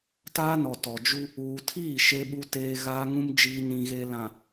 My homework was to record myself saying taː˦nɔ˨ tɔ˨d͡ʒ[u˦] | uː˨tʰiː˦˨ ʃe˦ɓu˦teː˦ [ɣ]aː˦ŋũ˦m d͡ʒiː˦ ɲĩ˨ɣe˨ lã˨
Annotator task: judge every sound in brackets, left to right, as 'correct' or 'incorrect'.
correct, correct

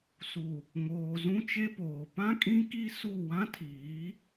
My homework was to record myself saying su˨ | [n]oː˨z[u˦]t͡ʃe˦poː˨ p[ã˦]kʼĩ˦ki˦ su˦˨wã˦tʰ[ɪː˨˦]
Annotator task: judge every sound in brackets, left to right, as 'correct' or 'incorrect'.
incorrect, incorrect, correct, incorrect

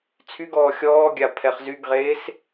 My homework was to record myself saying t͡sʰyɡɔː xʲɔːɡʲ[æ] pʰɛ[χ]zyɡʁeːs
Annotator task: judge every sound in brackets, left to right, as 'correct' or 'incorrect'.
incorrect, correct

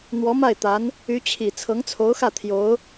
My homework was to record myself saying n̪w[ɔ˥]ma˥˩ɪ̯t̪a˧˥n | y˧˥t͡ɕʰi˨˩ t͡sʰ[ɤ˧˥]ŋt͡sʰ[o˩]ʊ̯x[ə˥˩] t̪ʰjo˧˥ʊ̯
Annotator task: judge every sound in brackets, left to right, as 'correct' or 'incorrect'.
incorrect, correct, incorrect, incorrect

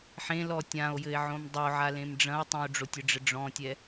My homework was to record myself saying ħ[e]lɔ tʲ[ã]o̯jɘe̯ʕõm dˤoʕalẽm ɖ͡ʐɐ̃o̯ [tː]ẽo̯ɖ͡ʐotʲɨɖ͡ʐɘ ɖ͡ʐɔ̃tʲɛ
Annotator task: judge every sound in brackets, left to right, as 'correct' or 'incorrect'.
incorrect, correct, incorrect

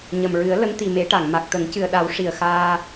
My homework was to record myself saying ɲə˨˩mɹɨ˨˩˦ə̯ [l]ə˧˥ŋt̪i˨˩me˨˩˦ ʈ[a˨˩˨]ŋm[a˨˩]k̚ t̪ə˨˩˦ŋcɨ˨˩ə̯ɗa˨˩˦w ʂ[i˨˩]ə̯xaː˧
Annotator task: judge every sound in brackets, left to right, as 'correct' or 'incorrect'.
correct, correct, correct, correct

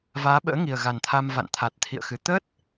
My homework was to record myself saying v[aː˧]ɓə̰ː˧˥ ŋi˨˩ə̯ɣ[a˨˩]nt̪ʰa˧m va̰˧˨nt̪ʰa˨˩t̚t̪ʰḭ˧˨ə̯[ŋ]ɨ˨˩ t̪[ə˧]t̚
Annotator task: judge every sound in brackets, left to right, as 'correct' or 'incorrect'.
incorrect, correct, incorrect, incorrect

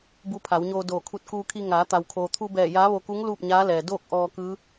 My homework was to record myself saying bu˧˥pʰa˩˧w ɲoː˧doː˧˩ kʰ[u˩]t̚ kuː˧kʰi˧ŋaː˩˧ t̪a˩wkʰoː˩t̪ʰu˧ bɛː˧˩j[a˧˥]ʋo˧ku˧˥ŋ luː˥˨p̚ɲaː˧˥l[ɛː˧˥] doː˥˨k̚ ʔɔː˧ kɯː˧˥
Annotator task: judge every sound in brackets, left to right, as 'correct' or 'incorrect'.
incorrect, incorrect, incorrect

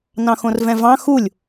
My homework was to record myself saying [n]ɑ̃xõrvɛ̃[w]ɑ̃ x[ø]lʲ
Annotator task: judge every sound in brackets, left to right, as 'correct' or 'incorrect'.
correct, incorrect, incorrect

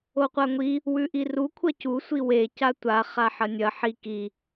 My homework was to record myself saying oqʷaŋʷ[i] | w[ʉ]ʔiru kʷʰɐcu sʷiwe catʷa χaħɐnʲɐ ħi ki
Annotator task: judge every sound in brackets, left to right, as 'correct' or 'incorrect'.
correct, correct

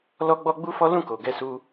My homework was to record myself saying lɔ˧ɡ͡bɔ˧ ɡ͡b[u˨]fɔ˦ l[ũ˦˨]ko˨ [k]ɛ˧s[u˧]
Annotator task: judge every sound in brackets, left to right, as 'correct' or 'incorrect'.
incorrect, correct, incorrect, correct

